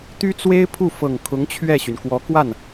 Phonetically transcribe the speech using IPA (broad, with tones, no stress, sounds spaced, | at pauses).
t̪ y˥ t͡s w e˥ ɪ̯ pʰ u˥˩ f ɤ˨˩ ŋ kʰ ʊ˧˥ ŋ t͡ɕʰ ɥ ɛ˥˩ ɕ y˩ n k w ɔ˧˥ k w a˥˩ n